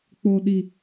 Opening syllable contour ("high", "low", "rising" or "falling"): low